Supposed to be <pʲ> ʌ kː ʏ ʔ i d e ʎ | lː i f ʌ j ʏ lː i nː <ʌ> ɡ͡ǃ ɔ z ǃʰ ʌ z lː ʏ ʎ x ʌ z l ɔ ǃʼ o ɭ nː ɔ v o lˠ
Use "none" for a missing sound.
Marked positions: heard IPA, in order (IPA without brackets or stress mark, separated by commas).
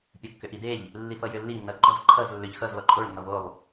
pʲ, ʌ